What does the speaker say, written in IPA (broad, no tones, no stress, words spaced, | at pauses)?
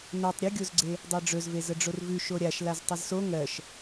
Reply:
notˤ ɾʲɵɡʲozɡ͡ǀe | dˤɜɖ͡ʐɵzve zəɖ͡ʐorvʉ ʃoɾʲaʃ laztˤəzso ŋɜʃ